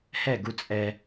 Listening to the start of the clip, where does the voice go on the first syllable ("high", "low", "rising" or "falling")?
falling